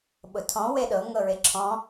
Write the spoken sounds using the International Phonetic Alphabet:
ɓ ʊ tʰ ɔ̃ w e ɗ ɤ ŋ ɤ ɹ e ǁʰ ɔ̃

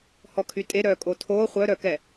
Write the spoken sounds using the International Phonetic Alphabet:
h ɔ kʰ y tʼ e ɾ œː kʼ o tʰ oː χʷ œ ɾ œ k ɛ

